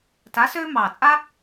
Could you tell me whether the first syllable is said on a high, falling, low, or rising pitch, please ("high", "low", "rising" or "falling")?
rising